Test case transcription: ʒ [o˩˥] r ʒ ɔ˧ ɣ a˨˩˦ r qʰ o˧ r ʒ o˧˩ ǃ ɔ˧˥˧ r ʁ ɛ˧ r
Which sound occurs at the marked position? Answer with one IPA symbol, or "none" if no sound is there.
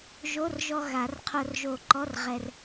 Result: o˧˥˧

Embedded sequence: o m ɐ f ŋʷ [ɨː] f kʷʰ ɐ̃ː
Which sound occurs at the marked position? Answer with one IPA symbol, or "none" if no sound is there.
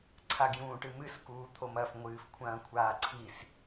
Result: ɨː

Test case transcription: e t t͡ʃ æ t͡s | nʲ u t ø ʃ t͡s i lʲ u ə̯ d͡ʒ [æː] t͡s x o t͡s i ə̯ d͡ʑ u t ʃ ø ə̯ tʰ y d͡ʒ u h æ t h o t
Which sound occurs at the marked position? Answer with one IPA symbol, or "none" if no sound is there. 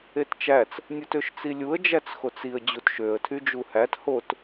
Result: æ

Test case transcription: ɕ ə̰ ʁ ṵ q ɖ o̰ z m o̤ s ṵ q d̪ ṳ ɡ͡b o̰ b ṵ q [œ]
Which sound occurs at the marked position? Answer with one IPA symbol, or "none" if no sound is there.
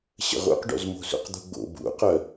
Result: œ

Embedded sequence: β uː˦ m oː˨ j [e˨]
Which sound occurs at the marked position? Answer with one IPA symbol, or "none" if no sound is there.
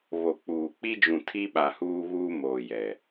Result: ɛ˨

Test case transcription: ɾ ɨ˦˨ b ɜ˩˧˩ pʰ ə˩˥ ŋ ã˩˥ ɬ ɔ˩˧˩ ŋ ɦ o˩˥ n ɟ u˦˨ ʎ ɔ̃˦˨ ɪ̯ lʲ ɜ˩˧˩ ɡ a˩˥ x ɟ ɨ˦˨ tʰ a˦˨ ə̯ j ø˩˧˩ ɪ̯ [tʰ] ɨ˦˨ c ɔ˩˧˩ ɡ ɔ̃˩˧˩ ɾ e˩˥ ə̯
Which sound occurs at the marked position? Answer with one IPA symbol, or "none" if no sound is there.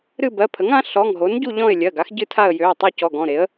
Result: tˤ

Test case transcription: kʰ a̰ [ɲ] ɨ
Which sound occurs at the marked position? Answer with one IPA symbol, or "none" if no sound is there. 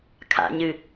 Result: ɲ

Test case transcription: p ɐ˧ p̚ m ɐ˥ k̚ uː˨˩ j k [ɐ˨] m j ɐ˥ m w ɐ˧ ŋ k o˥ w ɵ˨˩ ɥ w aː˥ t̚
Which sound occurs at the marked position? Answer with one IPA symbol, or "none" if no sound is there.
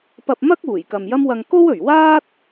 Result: ɐ˨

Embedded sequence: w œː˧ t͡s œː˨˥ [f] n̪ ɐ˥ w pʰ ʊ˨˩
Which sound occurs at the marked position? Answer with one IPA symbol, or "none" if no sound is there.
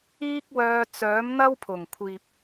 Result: m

